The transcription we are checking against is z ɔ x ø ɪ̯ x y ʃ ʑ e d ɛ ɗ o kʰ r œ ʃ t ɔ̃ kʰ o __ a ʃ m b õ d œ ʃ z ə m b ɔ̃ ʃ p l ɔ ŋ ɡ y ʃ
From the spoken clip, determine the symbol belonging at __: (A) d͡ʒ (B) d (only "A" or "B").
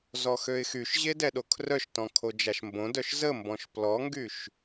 A